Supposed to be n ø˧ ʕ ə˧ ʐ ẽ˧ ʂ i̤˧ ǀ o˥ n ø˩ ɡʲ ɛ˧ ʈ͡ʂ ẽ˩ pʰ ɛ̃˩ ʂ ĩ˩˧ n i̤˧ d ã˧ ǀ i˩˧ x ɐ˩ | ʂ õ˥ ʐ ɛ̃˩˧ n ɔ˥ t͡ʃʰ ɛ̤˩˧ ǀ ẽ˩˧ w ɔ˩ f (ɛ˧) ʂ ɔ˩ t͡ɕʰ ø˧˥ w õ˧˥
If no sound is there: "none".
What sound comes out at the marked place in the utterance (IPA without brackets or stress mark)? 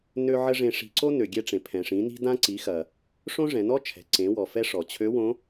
ɛ˧